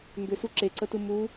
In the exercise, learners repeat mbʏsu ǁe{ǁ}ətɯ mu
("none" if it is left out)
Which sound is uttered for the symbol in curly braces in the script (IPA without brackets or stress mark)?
ǀ